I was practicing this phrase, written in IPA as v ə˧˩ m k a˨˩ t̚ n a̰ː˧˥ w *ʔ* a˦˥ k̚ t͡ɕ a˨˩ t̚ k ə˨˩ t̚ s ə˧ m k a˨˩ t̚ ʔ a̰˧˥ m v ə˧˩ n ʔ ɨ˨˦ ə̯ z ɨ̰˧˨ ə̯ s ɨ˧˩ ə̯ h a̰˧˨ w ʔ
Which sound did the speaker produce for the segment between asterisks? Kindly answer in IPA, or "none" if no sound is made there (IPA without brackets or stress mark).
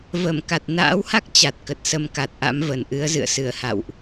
h